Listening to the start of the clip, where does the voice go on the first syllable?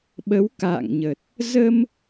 rising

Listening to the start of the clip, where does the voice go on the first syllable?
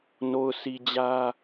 low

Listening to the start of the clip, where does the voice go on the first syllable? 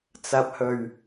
low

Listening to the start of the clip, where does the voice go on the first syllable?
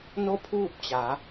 falling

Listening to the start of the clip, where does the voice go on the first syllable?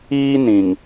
high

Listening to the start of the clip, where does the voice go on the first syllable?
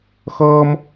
high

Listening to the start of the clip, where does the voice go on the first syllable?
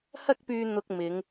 high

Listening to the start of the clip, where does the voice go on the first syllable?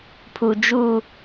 low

